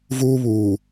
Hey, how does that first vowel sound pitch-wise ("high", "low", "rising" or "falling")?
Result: high